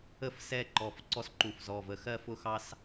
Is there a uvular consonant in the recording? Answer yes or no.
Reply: no